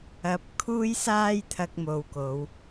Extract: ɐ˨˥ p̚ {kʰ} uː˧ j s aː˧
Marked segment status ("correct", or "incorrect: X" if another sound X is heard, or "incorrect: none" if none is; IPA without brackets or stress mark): correct